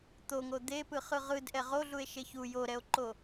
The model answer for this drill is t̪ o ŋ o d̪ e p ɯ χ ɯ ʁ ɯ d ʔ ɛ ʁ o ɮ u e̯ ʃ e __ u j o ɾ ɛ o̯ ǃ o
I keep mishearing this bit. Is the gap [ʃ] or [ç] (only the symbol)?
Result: ç